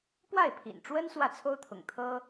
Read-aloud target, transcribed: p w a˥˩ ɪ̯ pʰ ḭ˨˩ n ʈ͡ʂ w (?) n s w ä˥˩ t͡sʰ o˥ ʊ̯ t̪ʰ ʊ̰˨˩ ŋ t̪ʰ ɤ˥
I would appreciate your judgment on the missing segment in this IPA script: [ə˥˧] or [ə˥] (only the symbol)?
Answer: ə˥